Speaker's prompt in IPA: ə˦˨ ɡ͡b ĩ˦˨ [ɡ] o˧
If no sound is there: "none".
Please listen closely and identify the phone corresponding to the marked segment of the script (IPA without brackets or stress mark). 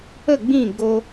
ɡ